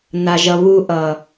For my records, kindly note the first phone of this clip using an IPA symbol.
n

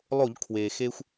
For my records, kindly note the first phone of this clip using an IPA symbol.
lˠ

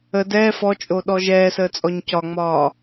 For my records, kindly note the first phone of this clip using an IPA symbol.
ə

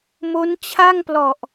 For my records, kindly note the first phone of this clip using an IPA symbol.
m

